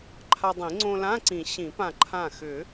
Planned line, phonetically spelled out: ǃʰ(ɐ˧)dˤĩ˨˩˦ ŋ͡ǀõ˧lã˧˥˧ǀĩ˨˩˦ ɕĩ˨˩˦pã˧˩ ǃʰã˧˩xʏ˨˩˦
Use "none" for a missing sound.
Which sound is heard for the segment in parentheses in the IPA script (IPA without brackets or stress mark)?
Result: a˧